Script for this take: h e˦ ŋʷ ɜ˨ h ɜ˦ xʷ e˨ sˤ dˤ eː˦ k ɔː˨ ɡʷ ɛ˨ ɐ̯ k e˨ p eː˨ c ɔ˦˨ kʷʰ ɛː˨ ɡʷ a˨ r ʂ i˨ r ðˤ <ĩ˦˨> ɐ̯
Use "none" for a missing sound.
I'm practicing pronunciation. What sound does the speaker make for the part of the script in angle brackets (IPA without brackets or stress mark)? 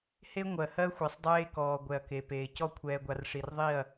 i˦˨